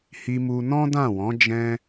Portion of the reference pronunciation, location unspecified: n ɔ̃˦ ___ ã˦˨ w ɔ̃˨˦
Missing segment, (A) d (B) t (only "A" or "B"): A